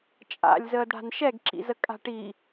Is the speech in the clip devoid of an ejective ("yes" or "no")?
no